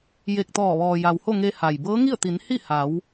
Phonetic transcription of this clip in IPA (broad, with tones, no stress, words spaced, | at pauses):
je˧˩k̚t̪ɔː˧˩ ʋɔː˩ja˩who˥˨ŋe˧ ha˩j bɤː˧˥ŋi˥˨ə̯t̪i˩˧n hi˥˨ha˩˧w